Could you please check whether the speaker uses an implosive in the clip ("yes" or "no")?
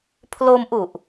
no